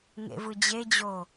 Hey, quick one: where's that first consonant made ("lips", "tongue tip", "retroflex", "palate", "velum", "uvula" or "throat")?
velum